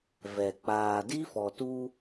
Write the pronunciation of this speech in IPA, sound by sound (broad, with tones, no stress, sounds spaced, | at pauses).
v ɛ˨ k͡p aː˨ d i˦ f ɔ˨ t u˦